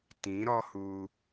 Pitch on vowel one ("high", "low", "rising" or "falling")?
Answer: rising